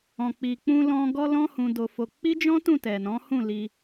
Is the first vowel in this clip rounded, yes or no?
yes